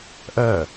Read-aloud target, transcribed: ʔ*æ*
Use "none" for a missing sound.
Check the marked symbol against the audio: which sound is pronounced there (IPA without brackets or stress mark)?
ɜ